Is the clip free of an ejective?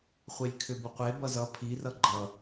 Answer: yes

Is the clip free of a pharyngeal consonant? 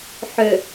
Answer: no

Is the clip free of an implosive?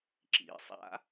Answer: yes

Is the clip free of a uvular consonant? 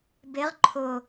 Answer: no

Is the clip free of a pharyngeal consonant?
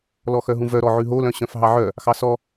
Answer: no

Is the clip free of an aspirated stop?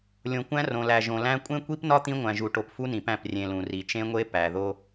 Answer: yes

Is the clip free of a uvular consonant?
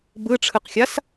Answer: no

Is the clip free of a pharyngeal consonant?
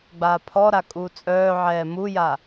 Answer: no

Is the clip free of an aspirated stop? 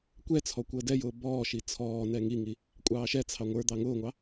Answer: no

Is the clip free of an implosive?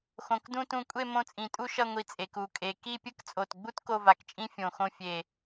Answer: yes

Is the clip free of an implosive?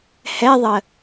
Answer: yes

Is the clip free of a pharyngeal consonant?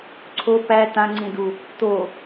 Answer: yes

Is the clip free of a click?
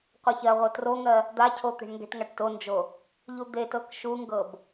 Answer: yes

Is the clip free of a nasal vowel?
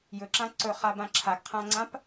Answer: no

